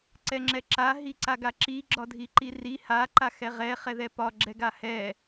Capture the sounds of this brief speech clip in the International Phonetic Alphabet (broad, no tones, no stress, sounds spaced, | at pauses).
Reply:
ǀ ɛ ŋ͡ǁ ɛ ǁ a ɦ i ǀ a ɡ a ǁ i ɡ͡ǁ ɒ dʱ i ǃ i r i h a ǃ a x ɛ ʁ ɛ χ ɛ ð ɛ p ɒ ɡ͡ǁ ɛ ɡ a h ɛ